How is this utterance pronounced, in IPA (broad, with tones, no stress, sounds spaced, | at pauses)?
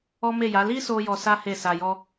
ɔ˦ m e˦˨ j a˨˦ l i˦ s o˧ j ɔ˧ s a˦ h e˦˨ s a˧ j ɔ˦